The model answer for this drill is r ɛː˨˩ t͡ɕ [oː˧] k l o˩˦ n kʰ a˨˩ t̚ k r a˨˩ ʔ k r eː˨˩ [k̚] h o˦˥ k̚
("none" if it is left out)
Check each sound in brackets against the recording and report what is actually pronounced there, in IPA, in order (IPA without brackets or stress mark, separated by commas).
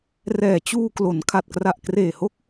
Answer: uː˧, none